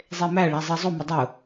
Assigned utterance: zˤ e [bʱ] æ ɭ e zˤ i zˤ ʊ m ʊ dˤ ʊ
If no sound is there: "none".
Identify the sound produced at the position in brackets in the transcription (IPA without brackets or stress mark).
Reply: m